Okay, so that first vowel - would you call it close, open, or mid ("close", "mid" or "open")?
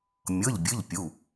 mid